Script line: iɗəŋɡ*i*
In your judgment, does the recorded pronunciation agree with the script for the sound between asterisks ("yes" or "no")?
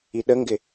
no